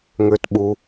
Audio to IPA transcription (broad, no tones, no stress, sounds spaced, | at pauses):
ŋ ʏː t ɓ u